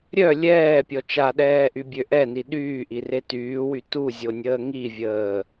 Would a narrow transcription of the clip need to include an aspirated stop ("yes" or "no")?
no